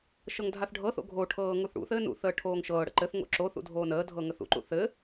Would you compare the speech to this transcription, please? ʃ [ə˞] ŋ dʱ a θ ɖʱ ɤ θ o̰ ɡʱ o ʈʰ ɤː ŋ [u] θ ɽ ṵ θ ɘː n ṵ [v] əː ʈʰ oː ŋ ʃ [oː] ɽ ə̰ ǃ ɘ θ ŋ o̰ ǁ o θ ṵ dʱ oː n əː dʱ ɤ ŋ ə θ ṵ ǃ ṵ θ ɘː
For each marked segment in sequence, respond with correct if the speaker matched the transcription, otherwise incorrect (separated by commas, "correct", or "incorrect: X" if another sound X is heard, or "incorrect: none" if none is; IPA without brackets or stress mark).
incorrect: ɤ, correct, incorrect: θ, incorrect: ɤː